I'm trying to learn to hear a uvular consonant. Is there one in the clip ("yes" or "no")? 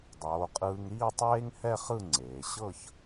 yes